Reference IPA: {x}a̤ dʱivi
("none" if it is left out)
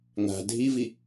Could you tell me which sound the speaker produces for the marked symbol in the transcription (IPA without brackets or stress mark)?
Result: ŋ